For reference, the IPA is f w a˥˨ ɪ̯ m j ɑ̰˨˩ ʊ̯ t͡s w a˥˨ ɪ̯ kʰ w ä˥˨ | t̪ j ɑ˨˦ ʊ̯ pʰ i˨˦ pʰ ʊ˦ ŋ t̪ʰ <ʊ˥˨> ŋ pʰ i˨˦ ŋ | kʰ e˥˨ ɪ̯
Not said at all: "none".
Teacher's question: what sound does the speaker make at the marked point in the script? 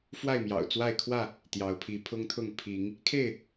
ʊ˥˨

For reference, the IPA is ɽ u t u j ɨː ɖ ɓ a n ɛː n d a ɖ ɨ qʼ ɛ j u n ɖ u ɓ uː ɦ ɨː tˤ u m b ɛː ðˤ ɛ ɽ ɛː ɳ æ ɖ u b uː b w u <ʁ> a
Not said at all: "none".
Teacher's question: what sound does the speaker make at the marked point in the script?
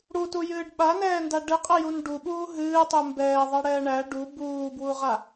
ʁ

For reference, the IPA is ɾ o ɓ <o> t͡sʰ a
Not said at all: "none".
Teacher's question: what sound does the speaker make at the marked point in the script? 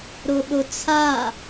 o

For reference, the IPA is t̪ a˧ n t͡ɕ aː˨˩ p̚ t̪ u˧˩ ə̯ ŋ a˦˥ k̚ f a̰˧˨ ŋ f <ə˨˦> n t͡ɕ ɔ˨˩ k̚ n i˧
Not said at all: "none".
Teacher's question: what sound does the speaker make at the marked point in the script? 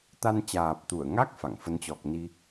ə˨˦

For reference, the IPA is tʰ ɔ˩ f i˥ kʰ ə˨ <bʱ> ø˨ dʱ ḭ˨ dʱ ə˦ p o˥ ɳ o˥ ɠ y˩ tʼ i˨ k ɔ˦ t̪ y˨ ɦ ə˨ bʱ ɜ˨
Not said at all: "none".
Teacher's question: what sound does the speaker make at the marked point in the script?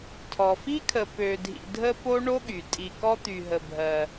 p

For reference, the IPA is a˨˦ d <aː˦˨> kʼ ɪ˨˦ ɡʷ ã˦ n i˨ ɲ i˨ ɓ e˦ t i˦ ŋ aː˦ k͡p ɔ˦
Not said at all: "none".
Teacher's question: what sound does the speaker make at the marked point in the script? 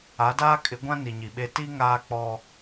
aː˦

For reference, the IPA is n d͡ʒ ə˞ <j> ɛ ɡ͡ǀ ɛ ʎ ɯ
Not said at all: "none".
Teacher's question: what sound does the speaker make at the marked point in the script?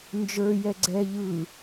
j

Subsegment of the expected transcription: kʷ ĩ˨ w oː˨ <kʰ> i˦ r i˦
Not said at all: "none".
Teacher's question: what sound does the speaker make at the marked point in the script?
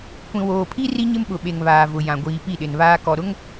pʰ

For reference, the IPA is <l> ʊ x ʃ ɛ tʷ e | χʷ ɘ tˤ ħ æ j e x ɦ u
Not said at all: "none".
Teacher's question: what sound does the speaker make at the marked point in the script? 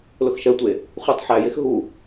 l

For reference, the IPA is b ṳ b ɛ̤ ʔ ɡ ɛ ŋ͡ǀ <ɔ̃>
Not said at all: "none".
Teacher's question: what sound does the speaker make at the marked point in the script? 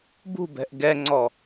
ɔ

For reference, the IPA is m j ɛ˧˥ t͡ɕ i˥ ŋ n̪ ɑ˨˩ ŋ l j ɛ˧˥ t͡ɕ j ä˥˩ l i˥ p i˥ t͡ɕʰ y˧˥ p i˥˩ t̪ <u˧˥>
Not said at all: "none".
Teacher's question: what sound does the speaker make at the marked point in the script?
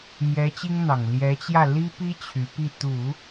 u˨˩˦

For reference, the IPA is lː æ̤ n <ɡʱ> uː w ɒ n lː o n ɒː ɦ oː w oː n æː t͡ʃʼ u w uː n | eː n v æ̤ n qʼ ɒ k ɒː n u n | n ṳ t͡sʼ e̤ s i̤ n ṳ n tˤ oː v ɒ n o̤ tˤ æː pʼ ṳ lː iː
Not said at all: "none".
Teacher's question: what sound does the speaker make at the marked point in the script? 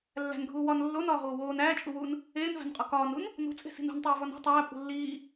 ɡʱ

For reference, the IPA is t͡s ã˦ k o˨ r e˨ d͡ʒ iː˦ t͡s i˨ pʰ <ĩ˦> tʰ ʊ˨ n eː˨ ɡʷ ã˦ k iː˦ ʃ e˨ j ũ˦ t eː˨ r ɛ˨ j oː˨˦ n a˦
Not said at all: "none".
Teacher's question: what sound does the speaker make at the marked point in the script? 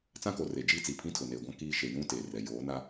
ĩ˦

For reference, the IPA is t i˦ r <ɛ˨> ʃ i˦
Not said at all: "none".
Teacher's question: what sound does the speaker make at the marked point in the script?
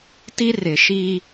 ɪ˨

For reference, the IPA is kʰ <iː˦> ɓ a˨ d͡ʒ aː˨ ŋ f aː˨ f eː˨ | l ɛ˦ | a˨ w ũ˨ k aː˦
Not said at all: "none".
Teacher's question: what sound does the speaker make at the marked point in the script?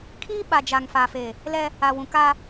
iː˦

